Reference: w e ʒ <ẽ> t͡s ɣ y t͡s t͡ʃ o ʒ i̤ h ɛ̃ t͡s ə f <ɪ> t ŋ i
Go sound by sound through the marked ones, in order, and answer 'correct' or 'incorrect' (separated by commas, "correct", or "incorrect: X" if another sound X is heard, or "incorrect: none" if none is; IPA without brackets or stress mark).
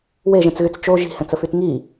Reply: incorrect: ɛ̃, incorrect: y